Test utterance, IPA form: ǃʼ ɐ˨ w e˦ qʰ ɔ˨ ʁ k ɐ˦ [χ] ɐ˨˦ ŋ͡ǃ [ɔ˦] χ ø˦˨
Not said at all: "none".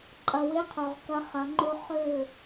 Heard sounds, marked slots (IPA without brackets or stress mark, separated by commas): χ, ʊ˦